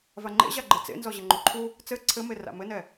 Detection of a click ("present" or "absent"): present